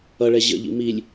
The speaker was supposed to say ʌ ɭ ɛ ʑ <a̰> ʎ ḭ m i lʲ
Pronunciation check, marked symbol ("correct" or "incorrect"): incorrect